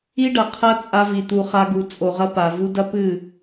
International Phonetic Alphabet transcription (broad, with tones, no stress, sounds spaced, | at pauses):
i˦ ɖ ɐ˨ qʰ ɐ˦ t͡sʼ a˧ v i˨ t̪ u˧ χ a˦ ɡ u˨˦ t͡sʼ o˨ ʁ ɐ˦ p a˨ v u˦ d ɐ˦ p ɨ˦˨